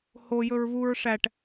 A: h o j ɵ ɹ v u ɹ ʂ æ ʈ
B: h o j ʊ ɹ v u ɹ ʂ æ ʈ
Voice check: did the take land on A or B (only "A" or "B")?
A